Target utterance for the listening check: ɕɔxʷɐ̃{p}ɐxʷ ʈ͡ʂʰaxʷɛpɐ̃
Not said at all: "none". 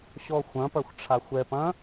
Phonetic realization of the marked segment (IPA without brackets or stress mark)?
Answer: p